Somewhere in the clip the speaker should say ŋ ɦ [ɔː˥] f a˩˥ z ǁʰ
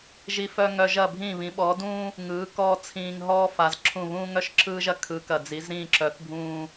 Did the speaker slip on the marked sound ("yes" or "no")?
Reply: no